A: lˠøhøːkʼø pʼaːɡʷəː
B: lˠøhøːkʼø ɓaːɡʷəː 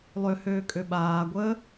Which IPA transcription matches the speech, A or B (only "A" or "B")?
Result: B